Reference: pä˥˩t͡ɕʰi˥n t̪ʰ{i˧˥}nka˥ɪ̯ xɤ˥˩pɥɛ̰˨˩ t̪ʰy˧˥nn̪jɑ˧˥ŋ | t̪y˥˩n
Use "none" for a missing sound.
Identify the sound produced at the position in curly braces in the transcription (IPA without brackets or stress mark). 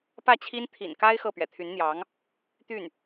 ḭ˨˩